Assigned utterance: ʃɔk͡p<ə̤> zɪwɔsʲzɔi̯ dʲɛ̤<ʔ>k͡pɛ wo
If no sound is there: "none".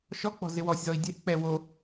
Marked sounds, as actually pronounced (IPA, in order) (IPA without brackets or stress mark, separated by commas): ɔ̤, ʔ